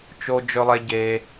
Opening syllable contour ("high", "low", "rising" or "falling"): high